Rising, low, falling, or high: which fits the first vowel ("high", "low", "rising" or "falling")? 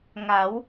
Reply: rising